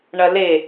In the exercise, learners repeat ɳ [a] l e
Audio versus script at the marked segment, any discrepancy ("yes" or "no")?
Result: yes